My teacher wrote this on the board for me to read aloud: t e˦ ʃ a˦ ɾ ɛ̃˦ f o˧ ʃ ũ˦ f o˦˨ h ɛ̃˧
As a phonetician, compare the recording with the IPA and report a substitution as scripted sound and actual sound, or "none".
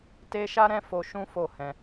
none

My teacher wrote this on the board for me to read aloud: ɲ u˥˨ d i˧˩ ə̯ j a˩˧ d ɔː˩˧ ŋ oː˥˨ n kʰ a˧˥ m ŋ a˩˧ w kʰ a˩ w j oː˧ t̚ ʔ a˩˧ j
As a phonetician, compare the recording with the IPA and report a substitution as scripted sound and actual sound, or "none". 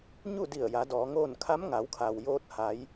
ʔ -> h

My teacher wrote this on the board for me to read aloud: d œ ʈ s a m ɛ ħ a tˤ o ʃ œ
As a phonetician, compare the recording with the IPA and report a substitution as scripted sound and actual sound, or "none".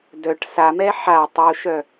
none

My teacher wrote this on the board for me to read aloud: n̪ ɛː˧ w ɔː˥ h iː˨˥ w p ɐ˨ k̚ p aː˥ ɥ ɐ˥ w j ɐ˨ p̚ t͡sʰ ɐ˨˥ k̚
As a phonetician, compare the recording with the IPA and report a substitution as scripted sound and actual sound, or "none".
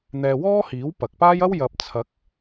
ɥ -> j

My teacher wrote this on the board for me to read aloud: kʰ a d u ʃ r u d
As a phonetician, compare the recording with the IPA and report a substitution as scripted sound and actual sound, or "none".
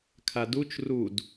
ʃ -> t͡ʃ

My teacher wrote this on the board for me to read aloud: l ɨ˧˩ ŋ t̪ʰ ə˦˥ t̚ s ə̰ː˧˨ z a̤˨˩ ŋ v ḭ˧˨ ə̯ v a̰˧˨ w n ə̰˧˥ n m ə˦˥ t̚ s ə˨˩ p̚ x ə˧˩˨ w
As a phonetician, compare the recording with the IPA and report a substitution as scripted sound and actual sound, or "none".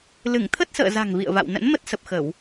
none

